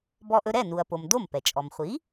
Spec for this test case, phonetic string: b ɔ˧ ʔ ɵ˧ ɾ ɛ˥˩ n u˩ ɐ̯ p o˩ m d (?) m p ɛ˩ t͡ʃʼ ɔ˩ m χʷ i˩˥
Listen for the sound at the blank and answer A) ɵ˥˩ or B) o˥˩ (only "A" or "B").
B